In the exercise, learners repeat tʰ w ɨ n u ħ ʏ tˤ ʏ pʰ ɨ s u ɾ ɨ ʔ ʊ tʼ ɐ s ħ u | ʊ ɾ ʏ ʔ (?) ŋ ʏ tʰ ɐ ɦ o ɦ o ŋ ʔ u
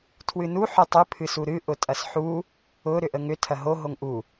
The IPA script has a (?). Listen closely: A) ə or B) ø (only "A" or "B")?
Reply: A